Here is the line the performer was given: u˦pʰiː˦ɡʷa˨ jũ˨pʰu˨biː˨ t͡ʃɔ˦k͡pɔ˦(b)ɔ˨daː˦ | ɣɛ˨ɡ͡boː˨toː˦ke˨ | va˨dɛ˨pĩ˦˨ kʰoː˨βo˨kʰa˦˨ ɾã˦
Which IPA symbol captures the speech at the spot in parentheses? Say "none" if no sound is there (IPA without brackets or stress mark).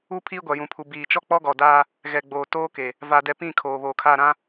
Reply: ɡ